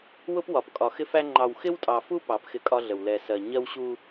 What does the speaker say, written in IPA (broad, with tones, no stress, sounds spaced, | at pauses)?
w ʊ˦ p w ɒ˨ p kʼ ɒ˨ x ɪ˦ f æ˦ ŋ͡ǃ ɑ˨ w x ɪ˦ w tʼ ɑ˨ f u˦ p ɑ˨˦ p x ɪ˦ kʼ ɒ˦ ɮ ə˨ w l ɛ˨ s ɜ˨ ɲ ɜ˦ w ɕ u˦